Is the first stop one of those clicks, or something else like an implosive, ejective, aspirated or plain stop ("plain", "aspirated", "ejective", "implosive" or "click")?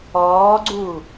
click